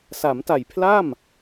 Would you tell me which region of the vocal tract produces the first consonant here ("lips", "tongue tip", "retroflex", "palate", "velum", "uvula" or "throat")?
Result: tongue tip